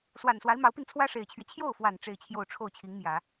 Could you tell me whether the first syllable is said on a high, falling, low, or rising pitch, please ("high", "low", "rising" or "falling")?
low